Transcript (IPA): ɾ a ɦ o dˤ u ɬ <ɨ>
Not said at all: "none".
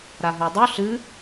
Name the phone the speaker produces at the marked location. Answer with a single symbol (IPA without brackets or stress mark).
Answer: ɨ